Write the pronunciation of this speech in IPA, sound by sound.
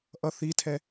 ʔ ʌ θ i tʰ ɛ

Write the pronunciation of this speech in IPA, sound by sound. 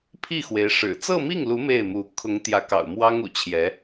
pʰ i˥˩ x w e˧˥ ɪ̯ ʂ ɻ̩˨˩ t͡s ɤ˥˧ m i˥˩ ŋ l u˧˥ m e˥˩ ɪ̯ m u˧˥ kʰ ʊ˧˥ ŋ t̪ j ä˧˥ k ɑ̰˨˩ ʊ̯ m w ɑ˥ ŋ ṵ˨˩ t͡ɕʰ j ɛ˧˥

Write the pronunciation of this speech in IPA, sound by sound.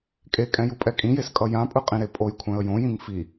kʼ e kʼ ɛ̃ j u pʼ ɛ kʼ ĩ j e s kʼ ʌ j ã pʼ ɯ qʼ ĩ ɾ e pʼ o j kʷʰ ɛ̃ ə̯ j õ j ĩ ŋ f i

